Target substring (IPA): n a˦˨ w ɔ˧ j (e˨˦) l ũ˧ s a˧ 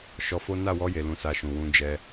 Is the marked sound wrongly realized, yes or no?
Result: yes